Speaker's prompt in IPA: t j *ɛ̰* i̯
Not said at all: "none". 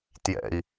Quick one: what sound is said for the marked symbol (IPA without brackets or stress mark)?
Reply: ɛ̰